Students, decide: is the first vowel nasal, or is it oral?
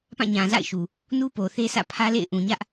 nasal